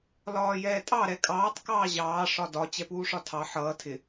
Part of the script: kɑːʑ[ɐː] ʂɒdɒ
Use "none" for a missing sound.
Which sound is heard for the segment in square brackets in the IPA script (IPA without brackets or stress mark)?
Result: ɑː